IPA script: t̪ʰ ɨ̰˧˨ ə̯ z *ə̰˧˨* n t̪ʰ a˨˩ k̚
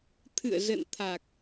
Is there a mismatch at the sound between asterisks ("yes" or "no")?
no